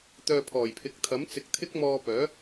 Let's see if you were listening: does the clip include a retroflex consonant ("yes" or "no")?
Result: no